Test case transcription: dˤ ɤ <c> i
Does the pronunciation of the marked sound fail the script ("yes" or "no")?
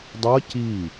no